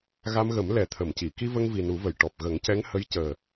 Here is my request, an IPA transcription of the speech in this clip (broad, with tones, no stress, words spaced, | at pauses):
ɣa˧mɣə˨˩˦m lɛ˨˩˦t̪ʰə˨˩˨mci˨˩˨ ki˧və˧ŋ vi˨˩nu˨˩˦və˨˩˨j ʈɔ˨˩p̚ ɣə˨˩˦ŋcɛ˧˥ŋhə˧˥j cəː˨˩